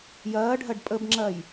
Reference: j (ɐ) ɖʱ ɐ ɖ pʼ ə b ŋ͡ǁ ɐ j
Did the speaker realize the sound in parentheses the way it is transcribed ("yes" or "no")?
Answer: no